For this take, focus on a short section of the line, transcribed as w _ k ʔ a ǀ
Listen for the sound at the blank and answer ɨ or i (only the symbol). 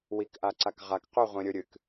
i